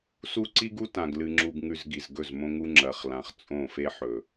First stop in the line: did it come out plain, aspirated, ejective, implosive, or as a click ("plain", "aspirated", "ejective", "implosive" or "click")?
click